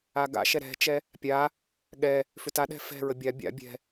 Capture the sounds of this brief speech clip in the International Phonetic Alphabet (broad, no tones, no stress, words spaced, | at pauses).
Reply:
aɡa̰ʃɛ ɾɛ̤t͡ʃɛ | pʲa | ɠɛ | fʏtaɗɛ̤ fɛ̤ɹə bʲa bʲa̰ bʲɛ̤